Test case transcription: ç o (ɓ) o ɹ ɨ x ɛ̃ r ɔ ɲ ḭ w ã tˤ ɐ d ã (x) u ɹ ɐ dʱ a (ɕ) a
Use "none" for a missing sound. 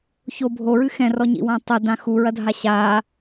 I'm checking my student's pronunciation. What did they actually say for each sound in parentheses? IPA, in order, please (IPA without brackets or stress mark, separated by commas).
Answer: bʱ, x, ɕ